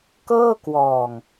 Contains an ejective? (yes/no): no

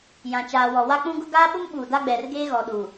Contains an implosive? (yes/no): yes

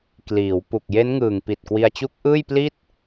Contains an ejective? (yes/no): no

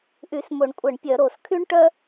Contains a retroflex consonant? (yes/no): yes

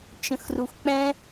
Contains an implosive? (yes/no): no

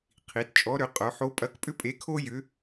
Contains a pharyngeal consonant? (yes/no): yes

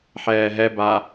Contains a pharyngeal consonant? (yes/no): yes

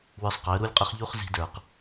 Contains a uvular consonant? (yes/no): yes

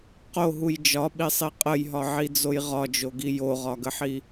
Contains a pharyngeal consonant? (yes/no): yes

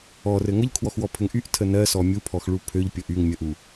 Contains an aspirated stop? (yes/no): yes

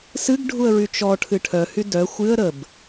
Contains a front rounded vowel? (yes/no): yes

